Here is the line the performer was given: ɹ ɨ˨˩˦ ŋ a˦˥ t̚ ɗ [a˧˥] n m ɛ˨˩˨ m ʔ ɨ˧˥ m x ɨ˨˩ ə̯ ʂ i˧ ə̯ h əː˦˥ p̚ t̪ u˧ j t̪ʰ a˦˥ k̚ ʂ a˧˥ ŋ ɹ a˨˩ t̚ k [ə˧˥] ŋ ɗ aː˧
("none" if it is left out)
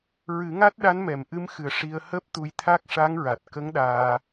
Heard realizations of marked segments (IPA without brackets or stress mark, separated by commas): a˧˥, ə˧˥